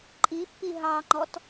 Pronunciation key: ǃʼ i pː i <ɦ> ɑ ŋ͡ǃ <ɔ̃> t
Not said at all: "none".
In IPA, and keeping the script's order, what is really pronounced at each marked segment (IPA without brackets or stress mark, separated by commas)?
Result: ɦ, ɔ